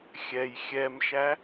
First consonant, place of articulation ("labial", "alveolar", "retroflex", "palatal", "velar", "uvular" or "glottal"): velar